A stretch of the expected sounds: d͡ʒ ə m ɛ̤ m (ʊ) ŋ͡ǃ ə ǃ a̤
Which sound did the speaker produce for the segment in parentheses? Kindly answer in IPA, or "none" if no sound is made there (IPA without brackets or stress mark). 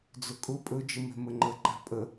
ə